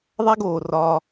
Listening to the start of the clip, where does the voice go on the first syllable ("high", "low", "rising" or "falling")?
high